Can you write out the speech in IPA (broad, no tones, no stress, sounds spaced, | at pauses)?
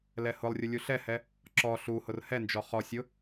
l ɛ h ʊ lˠ rʲ ʊ lʲ u ɬ ɛ h ɛ | ǁ ɔ ɬ u h ʊ r h ɛ n d͡ʒ ɔ χ ɔ sʲ ʊ